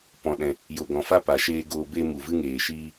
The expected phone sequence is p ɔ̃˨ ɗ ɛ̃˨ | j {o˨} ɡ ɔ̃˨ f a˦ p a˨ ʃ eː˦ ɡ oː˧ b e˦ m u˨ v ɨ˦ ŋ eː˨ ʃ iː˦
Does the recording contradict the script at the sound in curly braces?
no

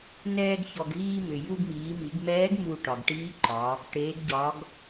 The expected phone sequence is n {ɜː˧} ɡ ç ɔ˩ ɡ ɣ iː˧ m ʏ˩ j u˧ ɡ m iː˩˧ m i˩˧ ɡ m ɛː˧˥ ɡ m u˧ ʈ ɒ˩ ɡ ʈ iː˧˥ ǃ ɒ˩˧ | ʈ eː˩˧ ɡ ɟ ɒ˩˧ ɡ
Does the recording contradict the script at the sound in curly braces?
yes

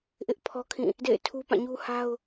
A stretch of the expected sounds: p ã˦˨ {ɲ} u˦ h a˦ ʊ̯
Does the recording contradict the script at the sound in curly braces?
no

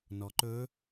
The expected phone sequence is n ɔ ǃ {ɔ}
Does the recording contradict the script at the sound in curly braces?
yes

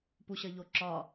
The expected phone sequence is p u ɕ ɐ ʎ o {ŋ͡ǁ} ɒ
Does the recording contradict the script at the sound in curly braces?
yes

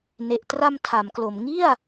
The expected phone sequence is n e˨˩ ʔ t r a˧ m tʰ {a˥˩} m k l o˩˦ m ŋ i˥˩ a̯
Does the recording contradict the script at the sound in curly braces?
yes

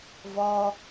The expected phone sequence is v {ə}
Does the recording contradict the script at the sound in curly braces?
yes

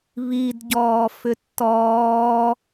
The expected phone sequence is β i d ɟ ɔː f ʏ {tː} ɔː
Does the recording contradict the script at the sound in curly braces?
no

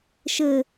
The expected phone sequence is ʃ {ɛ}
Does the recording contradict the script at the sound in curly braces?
yes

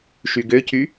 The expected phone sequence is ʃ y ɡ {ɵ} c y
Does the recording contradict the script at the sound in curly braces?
yes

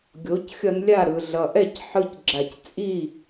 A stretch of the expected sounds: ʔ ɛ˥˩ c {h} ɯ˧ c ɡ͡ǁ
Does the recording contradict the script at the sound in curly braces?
yes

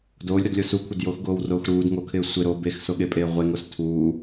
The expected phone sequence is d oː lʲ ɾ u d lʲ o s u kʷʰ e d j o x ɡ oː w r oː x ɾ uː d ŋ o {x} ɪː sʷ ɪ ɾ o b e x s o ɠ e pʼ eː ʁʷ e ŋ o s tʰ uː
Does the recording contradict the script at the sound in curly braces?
yes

